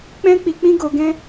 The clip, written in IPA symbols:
k͡p ɛ̃˦ k͡p i˧ k͡p ĩ˦ ɡ o˧ ɡ ɛ̃˦

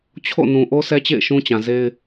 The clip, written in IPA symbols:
t͡ɕʰ o̰˦˨ n ũ˨ ʔ o˦ sʰ ɛ˦ t͡ɕ ḛ˦˨ ɪ̯ ʃ ũ˦ t͡ɕ ã˨ z e˦ ɪ̯

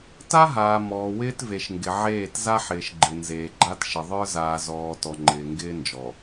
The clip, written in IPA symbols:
t a˦ ɦ aː˨ m ɔː˨ w ɪː˦ t v e˨ ʃ ŋ ɡ ɪ˨ ʕ eː˦˨ t z a˦ ħ ɪː˨ ʃ ɡ͡ǃ ɪ˨ n z eː˨ ɡ͡ǃ a˦ t ʃ ɪ˨ ðˤ ə˞˦ z aː˨ z ɔː˨ t ɔ˨ ŋ͡ǃ ɪː˨ ŋ ɡ ɪː˦ n d͡ʒ ɔ˨

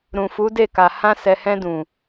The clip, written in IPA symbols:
ɾ ũ˨ f u˨˦ d e˦˨ k a˨ h ã˧ s ɛ˨ h ɛ̃˧ d ũ˨

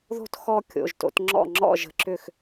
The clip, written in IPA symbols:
ð o̤˥ t x ɔ˥˧ kʲ o̰˩˧˩ ʒ t o̰˨˦ t ŋ͡ǁ ɔ̰˥˩ ŋ͡ǁ ɔ̰˥˩ ʒ ə̤˥ ǁ ʏ˥˩ x

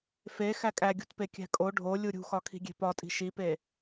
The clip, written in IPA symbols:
f e x æ kʼ æ ɡʲ ṳ t p e kʲ æ̤ kʼ o ɖʱ o lʲ u ɾʲ ṳ x ɒ kʰ i̤ ɡʲ e̤ p ɒ tʼ i̤ ʃ i p e

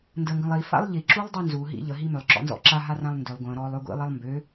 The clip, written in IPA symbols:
n d ə ŋ ɡ ə̃ lˠ i f a̰ lˠ ʎ i ǁ u lˠ dˤ y n z u ɦ ḭ ʎ ə ɦ i m ʏ lˠ ǁ ɔ̰ n z ɔ̰ ǁ a ɦ a r ã lˠ n d ʏ lˠ ɡʷ ə̃ː ɾ ɔː lˠ ø ɡʷ ḭ lˠ e lˠ m b ø

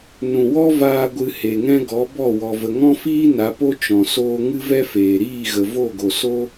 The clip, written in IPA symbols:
n ũ˨ w ɔ˦ v aː˧ ɡʷ ɨ˧ h e˨ ŋ ɛ̃˦ ɡ ɔ˨˦ b ɔ˦˨ w ɔ˨ v ə˨ ŋ ɔ̃˦ f iː˦ n a˨˦ p o˦ t͡ʃ ɔ̃˨ s oː˧ ŋ ɨ˦ v ɛ˦ f eː˨ ɾ iː˦˨ ɣ ə˨ v o˦˨ ɡ o˨ s o˦

